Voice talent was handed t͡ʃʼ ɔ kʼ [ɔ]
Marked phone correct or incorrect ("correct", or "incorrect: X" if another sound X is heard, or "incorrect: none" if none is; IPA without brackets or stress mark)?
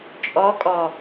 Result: correct